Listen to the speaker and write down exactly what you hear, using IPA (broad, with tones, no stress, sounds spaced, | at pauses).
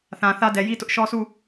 θ ã˨ θ ä˦ d ɛ˨ j i˦ t ʊ˦ ʔ ʃ ɔ˦ s u˦˨